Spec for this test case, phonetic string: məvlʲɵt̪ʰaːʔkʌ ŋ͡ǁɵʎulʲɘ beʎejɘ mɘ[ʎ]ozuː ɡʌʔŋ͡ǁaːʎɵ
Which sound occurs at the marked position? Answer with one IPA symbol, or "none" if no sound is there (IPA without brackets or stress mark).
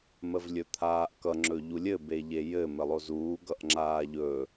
lˠ